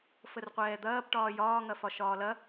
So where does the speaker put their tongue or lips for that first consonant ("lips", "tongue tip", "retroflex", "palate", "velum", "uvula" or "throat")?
lips